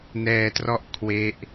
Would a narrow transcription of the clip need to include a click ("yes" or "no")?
no